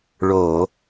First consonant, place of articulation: retroflex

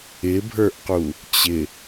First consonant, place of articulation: labial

